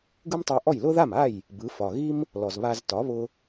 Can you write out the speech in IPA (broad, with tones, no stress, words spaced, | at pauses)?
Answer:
ɡɯ˥mtˤa˧ʔɔ˥˩j lʊ˥ða˥˩ma˥˩j | bɯ˩˥ fɒ˩ɣi˥m | lɔ˩zβa˧z tɒ˩˥βʊ˧